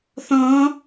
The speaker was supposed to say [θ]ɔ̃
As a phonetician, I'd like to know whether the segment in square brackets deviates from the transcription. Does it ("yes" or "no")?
no